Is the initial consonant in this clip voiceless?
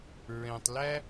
no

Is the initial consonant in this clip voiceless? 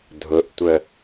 no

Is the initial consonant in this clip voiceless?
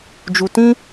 no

